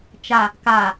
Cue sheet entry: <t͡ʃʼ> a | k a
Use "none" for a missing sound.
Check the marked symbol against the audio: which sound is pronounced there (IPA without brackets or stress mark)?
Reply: t͡ʃ